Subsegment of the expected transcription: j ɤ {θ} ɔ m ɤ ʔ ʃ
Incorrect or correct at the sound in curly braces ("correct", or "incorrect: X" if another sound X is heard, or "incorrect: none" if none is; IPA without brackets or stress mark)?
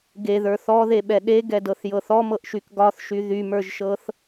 correct